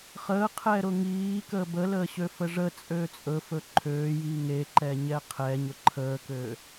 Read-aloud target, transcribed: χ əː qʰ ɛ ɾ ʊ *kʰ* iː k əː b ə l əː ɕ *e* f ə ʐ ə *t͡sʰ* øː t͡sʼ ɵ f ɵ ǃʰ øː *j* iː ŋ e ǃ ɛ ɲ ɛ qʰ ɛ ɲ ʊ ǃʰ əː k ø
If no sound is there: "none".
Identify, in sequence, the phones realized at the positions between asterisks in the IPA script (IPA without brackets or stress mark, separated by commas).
ŋ, ø, t͡sʼ, j